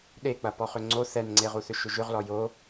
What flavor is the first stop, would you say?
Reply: implosive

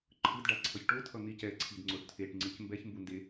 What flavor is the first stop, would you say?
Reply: click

